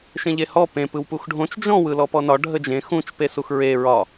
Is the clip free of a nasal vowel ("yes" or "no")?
no